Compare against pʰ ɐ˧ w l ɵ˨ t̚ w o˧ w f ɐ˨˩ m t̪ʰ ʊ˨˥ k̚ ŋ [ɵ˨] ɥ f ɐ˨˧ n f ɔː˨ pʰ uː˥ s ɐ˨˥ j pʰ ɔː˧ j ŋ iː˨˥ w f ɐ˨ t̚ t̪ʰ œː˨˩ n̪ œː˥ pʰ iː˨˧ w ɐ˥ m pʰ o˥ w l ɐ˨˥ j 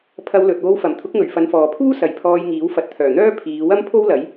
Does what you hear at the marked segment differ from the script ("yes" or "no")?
yes